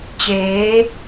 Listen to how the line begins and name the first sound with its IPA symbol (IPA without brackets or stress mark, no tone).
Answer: t͡ɕ